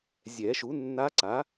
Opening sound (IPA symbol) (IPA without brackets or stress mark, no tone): zʲ